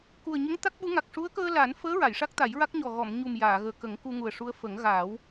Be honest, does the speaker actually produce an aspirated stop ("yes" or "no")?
no